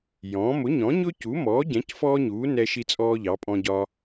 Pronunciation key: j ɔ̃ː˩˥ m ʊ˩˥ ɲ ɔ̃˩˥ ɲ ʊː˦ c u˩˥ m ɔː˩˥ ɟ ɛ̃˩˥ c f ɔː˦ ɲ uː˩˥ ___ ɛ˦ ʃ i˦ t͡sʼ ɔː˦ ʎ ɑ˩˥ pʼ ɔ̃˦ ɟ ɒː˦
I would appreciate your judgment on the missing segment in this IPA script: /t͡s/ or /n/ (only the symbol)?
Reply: n